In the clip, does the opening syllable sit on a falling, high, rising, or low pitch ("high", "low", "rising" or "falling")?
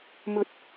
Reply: high